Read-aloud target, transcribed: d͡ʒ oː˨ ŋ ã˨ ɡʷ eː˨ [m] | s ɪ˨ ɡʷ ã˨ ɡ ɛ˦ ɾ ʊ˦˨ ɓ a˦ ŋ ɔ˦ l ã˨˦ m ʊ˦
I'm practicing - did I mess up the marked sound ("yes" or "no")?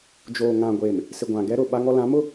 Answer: no